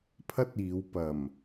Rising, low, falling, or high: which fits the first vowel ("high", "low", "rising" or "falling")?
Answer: high